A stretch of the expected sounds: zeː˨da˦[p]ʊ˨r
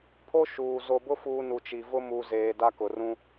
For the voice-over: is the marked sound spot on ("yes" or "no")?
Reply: no